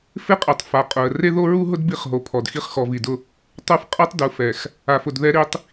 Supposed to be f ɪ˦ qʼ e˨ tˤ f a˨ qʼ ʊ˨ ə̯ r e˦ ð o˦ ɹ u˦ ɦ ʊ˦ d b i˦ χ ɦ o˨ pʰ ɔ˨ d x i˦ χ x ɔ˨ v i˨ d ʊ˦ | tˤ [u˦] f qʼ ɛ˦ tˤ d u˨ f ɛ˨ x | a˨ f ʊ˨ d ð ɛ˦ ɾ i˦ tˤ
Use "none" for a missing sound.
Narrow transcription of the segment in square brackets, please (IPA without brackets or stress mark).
u˦